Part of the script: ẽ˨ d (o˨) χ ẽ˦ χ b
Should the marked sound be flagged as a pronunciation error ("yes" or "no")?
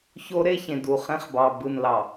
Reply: yes